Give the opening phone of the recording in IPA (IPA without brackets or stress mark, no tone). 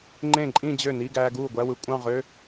ŋ͡ǃ